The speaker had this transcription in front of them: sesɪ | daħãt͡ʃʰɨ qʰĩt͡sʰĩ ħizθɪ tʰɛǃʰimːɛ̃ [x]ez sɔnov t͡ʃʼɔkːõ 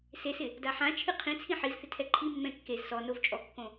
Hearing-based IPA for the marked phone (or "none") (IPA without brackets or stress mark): kː